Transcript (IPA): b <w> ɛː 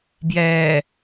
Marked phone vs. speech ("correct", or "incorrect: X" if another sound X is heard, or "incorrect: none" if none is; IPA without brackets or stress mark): incorrect: j